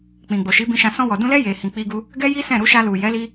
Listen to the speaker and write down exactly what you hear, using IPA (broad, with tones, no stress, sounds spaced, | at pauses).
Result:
k͡p ĩ˨ ɡ͡b o˨ ʃ i˨˦ b ĩ˧ ʃ ã˧ s ɔ̃˧ w ɔ˨ d ũ˧ l ɛ˦ j e˧ h ĩ˧ k͡p i˦ ɡ u˦ | ɡ ɛ˦ j i˦ s ɛ̃˦˨ ɾ u˧ ʃ a˧ l u˨ j ɛ˨˦ l i˦